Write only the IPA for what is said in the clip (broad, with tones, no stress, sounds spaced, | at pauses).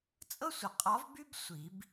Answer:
t͡sʼ ɤ˥ sʷ ə˨˩˦ qʼ ɒ˧˥ v b y˥ b sʷ i˨˩˦ b